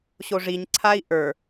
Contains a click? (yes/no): yes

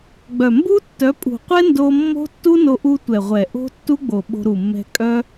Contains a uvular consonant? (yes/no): yes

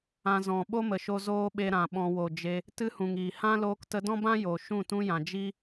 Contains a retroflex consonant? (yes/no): no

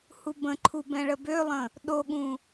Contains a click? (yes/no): yes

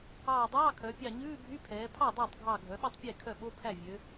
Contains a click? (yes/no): no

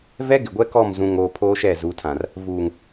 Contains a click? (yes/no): no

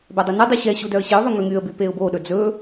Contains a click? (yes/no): no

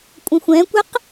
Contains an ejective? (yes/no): yes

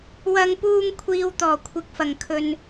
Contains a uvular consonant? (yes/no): no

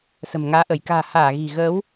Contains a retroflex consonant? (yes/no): no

